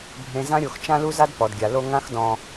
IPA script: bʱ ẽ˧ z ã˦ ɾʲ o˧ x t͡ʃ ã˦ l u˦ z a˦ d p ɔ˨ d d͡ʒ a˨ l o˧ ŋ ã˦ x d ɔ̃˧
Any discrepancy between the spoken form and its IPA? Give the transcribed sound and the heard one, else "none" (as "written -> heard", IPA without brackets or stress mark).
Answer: d͡ʒ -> ɡʲ